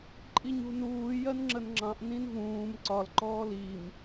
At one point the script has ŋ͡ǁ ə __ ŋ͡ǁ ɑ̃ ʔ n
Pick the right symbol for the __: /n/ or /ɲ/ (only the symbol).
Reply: n